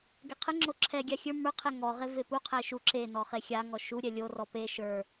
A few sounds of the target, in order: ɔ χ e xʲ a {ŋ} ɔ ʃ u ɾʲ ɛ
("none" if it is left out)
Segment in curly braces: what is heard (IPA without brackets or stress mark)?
ŋ